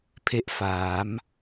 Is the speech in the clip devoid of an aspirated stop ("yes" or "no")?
no